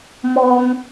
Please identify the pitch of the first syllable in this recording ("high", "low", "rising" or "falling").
high